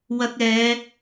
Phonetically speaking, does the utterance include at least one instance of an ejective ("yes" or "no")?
no